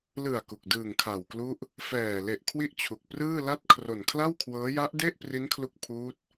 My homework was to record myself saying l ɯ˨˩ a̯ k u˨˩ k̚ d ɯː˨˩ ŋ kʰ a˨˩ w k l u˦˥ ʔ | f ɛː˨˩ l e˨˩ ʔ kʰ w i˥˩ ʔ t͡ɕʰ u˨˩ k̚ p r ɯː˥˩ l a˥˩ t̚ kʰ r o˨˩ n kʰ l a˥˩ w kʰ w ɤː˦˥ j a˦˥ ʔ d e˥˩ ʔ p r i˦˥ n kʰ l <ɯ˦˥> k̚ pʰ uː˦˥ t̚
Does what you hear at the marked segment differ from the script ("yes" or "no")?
yes